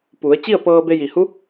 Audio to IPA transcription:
pu˩˧ə̯ t͡ɕi˥˨ə̯pɤː˧be˧ ji˩hu˧˥

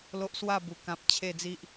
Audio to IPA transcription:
lo˦ʔswa˥˧bu˨˩kã˨p̚ t͡ɕʰe˨˩d͡zi˨ʔ

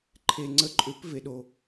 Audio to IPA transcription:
ǃʰe˨ŋ͡ǀə˨˥ǃʼʏ˨˩˦p ve˨ɗo˨

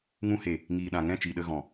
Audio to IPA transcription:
ŋũ˧he˨ | ŋiː˨ɗã˨ŋɛ̃˦˨ t͡ʃi˨ɗə˧ ɣɔ̃˨

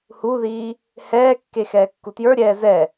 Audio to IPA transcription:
huðiː | hɛːkːexɛː kːutjə˞ɾʲɛː zɛ

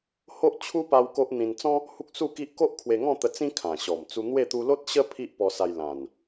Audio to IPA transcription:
ho˦ʔt͡ɕʰu˦ pa˦wko˦ʔ n̪ĩ˧nt͡sɔ̃˦ | hu˦k̚ su˥˧ki˦ʔ ko˦ʔkʰwe˧ŋɔ̃˥˧ t̪ə˧ t͡sĩ˦ kʰã˨˩ɕɔ˨˩mt͡su˧ n̪we˥˧ t̪u˧lo˦t̚ɕə˦ pʰi˦ʔpɔ˧sa˧j lã˨˩n

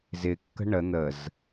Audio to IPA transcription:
zɪkːə̤ ɳə n̪əz

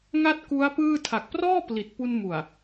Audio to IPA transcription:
ŋa˥˩t̚ku˦˥a̯ pɯː˥˩ tʰa˨˩k̚prɔː˥˩ pli˨˩t̚pu˧nmu˨˩a̯

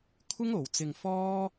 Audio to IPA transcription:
kʷʰɪ˥ŋo˨wt͡sɪ˧ŋ fɔː˥

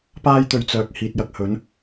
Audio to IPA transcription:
paː˧jt̪ɵ˨ɥ t͡sœː˨k̚ hiː˨t̚jɐ˧k̚hɵ˨˧n

